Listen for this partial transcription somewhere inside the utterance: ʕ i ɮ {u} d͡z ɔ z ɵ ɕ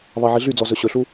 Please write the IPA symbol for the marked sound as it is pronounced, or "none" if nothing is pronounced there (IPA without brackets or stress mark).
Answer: y